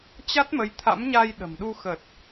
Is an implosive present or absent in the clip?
present